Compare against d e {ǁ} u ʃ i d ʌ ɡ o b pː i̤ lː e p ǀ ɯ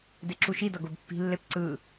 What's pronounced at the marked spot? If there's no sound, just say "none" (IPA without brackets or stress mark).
ǁ